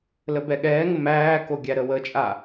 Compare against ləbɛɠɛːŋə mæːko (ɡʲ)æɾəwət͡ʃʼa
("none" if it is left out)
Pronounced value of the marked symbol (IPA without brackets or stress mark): ɡʲ